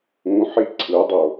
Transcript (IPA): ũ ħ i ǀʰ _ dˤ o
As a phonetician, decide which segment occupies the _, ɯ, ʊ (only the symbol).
ɯ